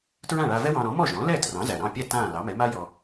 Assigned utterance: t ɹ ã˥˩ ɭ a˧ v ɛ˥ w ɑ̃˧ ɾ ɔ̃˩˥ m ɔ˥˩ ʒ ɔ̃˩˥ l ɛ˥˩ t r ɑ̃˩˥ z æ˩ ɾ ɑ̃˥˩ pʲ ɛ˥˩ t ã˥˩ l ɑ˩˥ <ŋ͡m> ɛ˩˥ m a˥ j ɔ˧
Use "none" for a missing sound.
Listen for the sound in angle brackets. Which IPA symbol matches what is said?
m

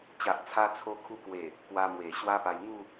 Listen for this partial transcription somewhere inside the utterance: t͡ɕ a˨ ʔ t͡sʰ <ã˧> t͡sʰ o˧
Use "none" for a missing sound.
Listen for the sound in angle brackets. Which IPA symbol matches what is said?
a˧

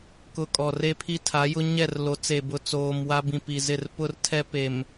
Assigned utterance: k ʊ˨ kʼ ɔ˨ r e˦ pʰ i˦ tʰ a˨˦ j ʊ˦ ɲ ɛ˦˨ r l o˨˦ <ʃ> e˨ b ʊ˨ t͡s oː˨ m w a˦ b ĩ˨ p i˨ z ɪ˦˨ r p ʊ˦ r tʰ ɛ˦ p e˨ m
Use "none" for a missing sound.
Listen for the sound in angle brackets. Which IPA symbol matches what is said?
t͡s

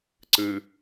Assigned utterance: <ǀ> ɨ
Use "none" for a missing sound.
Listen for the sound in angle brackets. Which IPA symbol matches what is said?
ǀ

